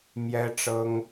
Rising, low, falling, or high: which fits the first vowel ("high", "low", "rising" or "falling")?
high